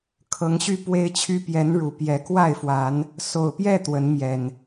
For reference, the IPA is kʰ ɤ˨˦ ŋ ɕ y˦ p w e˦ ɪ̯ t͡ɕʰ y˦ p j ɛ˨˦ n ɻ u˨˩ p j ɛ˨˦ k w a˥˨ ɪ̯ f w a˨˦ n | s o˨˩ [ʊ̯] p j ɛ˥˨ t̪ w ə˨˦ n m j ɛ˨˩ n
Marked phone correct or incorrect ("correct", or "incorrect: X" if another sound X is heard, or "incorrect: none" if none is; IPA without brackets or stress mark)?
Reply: correct